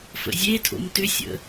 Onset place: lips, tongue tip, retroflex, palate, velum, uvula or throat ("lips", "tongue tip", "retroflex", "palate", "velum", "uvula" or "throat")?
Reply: lips